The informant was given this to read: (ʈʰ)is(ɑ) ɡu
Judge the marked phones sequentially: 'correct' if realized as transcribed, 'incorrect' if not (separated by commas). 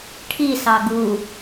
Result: correct, correct